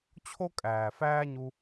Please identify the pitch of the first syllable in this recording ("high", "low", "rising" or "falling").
high